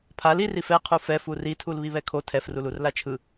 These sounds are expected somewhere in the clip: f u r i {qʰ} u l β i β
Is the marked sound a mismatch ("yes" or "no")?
yes